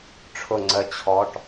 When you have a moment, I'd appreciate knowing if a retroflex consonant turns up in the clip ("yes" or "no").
yes